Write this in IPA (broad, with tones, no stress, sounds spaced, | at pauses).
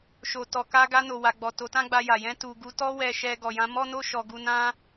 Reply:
ʃ o˨ t ɔ˨ k a˧ ɡ a˧ n o˨ w a˨ ɡ͡b ɔ˨ t o˨˦ t ã˦ ɡ͡b a˧ j a˨ j ɛ̃˧ t u˨ ɡ u˨˦ t ɔ˦ w ɛ˧ ʃ ɛ˧ ɡ ɔ˨ j ã˧ m ɔ˦ n o˦ ʃ ɔ˧ ɡ u˧ n ã˦